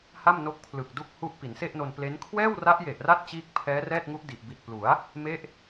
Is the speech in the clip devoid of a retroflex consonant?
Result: yes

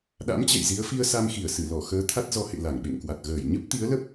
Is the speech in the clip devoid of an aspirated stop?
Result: no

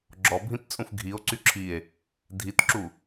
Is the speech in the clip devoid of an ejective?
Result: no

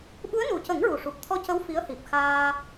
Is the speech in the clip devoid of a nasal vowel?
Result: yes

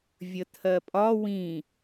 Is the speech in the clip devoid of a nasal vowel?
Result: no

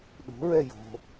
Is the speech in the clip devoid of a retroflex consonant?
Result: yes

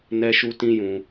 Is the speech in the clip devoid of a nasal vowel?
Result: no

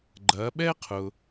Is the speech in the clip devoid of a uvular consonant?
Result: no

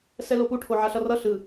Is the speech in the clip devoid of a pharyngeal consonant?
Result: no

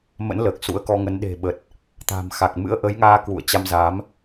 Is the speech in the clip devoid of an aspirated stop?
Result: yes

